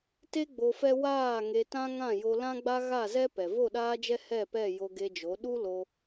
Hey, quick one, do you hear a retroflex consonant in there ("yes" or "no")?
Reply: no